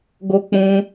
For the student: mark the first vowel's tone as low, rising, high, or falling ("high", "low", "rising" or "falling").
high